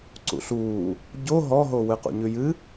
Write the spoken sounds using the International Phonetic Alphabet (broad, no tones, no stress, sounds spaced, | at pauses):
ǀ ṵ ɬ uː | ɟ o ɦ ɔ ɦ o w ɨ q ṵ ɲ ʉ j ɨ